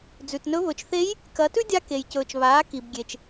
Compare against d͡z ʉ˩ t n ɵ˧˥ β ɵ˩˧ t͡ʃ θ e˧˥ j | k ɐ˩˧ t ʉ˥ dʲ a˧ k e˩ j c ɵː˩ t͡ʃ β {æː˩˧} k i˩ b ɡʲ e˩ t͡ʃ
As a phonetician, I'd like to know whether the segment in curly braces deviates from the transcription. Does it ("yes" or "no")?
yes